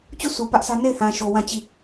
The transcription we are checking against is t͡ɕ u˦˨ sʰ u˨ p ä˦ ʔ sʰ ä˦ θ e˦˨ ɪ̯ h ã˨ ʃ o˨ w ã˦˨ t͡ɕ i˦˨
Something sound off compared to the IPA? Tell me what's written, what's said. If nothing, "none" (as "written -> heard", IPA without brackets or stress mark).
θ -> n